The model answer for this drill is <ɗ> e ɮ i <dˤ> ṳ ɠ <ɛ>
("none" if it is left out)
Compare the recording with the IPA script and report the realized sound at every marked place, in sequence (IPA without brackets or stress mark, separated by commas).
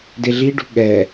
d, ɖ, ɛ